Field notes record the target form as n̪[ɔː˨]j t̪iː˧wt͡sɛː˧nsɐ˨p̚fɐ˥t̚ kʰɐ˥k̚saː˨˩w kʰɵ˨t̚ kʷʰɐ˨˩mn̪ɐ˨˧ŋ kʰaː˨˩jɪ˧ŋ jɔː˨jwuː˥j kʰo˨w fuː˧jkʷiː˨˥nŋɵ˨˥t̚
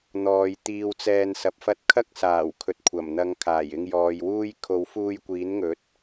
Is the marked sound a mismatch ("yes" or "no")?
no